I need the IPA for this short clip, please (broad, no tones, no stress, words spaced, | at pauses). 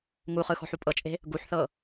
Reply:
ŋuχɯ xɔ̤ħupʼɤt͡ʃʼe̤ | ɡuħθɤ